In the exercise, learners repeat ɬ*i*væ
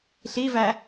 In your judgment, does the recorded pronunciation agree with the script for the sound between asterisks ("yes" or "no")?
yes